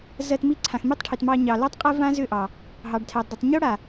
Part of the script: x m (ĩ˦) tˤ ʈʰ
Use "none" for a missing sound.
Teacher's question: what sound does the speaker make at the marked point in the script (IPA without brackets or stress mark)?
i˦